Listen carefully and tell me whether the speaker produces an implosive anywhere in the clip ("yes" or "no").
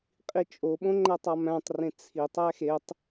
yes